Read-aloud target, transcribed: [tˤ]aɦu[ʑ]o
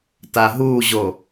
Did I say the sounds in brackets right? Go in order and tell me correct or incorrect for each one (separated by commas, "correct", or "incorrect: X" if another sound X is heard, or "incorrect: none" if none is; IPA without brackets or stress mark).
incorrect: t, correct